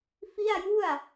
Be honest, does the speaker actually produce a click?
no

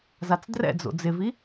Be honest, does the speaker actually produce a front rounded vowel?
no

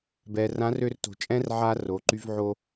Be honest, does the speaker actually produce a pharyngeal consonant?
yes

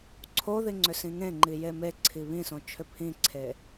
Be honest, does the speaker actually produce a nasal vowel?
yes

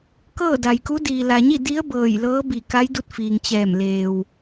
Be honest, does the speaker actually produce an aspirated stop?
no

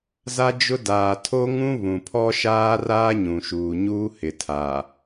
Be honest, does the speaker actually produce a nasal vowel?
yes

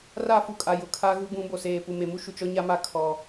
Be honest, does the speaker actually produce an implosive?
no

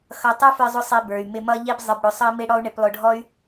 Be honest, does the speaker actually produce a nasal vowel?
no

